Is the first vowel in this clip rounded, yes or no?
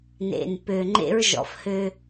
no